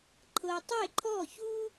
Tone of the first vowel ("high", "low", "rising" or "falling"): low